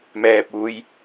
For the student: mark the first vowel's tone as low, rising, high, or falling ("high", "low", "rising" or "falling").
low